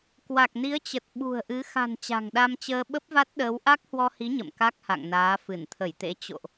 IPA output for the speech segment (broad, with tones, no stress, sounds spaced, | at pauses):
k w a˨˩ k̚ n i˨˦ ə̯ t͡ɕ ə˨˩ t̚ ɓ ṳ˨˩ ə̯ ʔ ɨ˨˦ x a̤˨˩ n t͡ɕ a̤˨˩ ŋ ɗ a˧ m t͡ɕ əː˧ ɓ ə˦˥ p̚ v a˦˥ t̚ ɗ əː˨˦ w ʔ a˦˥ k̚ h w ɔ˧ h i˨˦ ɲ ə̰˧˨ m k a˦˥ k̚ h a̰˧˨ ŋ n aː˨˦ f ɨ˧˩ n t̪ʰ ə˧˩ j t̪ ḛ˧˥ t͡ɕ o̰˧˨ ʔ